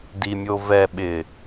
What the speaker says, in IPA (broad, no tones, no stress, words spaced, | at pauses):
dimʲovɛ ɓɪ